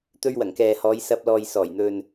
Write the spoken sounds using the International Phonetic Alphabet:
t̪ ɵ˧ ɥ w ɐ˨˩ ŋ k ɛː˨ h ɔː˨˧ j s ɐ˧ p̚ l ɔː˨ j s ɔː˨˩ j n̪ ɵ˨ n

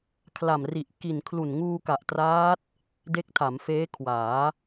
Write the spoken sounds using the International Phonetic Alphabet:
kʰ l a˨˩ m r i˨˩ ʔ k i˨˩ n kʰ l u˨˩ n ŋ uː˧ k a˨˩ ʔ t r aː˦˥ t̚ | d e˦˥ k̚ tʰ a˩˦ m f eː˦˥ kʰ w aː˩˦

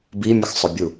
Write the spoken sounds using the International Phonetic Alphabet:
b i mʲ ə x sˤ ʊ bʲ u

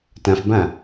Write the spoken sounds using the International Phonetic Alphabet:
t ã f b ã

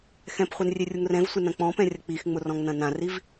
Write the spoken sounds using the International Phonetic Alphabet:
x ɛ̃ p χʷ ɛ n rʲ e rʲ u ŋ r ɛ̃ v sʷ ɪ n ɐ̃ k͡p ɔ̃ p ɛ̃ rʲ ɐ k͡p i x ŋ͡m ʊ r ɔ̃ ŋ n ɐ̃ n ã r i v

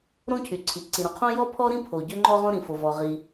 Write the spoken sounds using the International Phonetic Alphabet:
ɾ õ˥ cʰ y˩ ǀʰ i˩ ǀ ĩ˩ ɾ õ˩ qʰ õ˥ j ɔ˥ pʰ ɔ˥ ɾ ĩ˥ pʰ o˩ ɟ ø˥ ŋ͡ǃ ɔ˥ ʁ õ˥ ɾ ĩ˩ f o˩ v ɔ˩ ʁ i˩

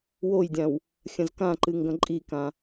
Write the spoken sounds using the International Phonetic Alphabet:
w o j dʲ ã w | xʲ ɐ̃ z k ã ǃ ɨ ŋ ɡ ɐ̃ ǃʼ i k ã

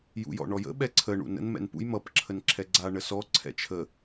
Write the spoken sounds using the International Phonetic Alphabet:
j ṵ j ɔ̰ ɳ ɔ j ə̰ ɓ ɛ ǀʰ ə ɳ ṵ n ə̰ n m ɛ̰ n p ṵ j m ʌ p ǁʰ ə n ǁʰ ɛ ɡ͡ǀ a ɳ ə s ɔ ǀʰ ɛ̰ t͡ʃʰ ə

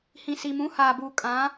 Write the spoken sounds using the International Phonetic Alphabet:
h ĩ˨ s i˨ m ũ˨˦ h aː˨ b uː˨ kʼ ã˨˦

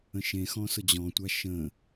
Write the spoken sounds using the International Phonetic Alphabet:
ə̃ ʃ ẽ x ɔ̃ s ʊ d͡ʑ ɔ̃ tʷ a ʃ ə̃

